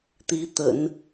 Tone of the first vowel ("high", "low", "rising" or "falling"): rising